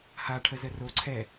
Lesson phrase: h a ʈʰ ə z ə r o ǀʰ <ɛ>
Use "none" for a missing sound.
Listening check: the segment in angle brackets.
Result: ɛ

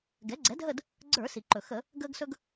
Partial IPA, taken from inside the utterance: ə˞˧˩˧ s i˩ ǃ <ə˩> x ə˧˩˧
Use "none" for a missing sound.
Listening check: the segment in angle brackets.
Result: ɵ˩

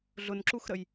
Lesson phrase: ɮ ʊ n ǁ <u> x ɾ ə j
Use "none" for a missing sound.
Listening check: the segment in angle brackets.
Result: u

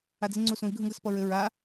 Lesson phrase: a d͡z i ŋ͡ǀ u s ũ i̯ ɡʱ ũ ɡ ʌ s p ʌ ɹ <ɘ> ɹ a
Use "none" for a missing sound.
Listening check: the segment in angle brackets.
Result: ɘ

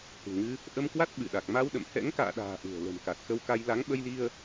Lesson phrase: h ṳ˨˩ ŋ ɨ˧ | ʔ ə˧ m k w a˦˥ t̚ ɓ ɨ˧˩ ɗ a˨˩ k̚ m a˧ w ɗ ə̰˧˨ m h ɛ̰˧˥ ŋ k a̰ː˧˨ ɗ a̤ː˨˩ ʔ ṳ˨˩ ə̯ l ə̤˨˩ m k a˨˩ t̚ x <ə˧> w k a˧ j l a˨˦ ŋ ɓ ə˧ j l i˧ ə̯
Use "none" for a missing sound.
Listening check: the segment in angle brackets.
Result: ə˧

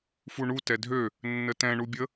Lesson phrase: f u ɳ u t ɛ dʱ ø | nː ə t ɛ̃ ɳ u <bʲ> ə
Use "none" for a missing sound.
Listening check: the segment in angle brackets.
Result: bʲ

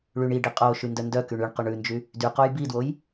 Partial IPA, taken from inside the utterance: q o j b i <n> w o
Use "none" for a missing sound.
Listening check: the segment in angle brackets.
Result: d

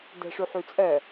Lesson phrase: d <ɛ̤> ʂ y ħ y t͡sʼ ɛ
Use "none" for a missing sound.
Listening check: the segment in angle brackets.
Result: ɛ̤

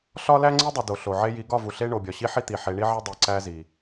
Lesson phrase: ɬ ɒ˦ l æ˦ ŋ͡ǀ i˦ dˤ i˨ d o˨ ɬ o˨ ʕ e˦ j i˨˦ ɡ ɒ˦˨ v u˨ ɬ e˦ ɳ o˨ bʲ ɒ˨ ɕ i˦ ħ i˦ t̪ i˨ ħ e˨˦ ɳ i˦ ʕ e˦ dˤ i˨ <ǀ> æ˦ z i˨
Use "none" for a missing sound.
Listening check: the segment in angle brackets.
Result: ǀ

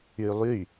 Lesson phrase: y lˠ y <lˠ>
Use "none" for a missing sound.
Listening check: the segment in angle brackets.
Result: none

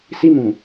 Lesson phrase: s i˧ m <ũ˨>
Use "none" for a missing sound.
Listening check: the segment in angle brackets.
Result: ũ˨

